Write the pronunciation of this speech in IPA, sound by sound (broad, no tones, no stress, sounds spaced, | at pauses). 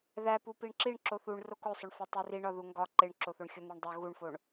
ð æ p u p i ɳ ǁ i ɳ ǁ o θ u ɳ r o k o sˤ o ɳ f æ tˤ i r i ɳ ɒ ð u ŋ ɡ ɒ ǃ e ɳ ǁ o θ o ɳ xʲ o n̪ e ɳ dˤ o ɣ u ɳ f o ɳ